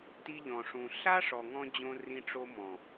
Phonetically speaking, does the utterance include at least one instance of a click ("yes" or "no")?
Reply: no